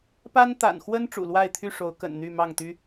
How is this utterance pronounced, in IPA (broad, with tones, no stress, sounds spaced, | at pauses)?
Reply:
p a˦ n t̪ a̰˨˩ n x w ə˦ n ʈ͡ʂ ṵ˨˩ l w a˥˨ ɪ̯ t̪ʰ y˥˨ ʂ o˨˦ ʊ̯ k ə̰˨˩ n n̪ y˥˨ m ɑ˥˨ ŋ t̪ y˦